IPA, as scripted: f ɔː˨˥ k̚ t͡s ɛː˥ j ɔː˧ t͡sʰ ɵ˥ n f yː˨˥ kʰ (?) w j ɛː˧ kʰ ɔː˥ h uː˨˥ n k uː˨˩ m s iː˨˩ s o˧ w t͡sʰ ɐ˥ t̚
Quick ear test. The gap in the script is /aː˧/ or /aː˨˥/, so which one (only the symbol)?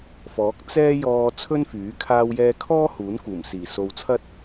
aː˧